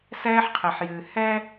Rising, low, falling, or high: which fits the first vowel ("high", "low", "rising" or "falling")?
high